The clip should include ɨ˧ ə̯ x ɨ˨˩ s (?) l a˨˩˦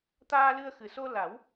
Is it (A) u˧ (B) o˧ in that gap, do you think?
B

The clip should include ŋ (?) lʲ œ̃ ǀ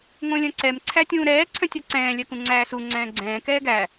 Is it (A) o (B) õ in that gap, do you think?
B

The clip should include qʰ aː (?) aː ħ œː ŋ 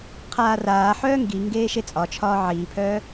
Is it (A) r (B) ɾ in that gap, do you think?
A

